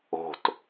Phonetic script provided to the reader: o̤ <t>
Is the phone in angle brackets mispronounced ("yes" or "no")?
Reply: no